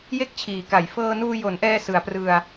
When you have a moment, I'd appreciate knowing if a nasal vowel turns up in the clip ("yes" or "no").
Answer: no